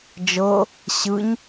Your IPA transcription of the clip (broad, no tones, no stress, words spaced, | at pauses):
d͡ʒɤ | ɕɯɲ